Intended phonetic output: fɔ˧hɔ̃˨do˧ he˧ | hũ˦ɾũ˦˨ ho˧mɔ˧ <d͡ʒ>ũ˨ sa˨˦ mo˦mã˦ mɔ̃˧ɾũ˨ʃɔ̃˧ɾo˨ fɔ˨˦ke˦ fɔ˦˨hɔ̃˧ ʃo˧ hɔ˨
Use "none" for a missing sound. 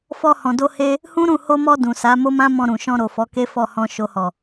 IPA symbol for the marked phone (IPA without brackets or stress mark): d